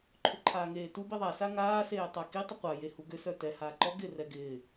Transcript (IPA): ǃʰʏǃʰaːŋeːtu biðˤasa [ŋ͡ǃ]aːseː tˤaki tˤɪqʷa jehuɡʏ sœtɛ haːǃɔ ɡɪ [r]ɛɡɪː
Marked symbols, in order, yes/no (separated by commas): no, yes